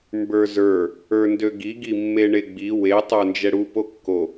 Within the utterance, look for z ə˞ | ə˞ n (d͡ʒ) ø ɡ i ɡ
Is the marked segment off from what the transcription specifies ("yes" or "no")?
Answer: yes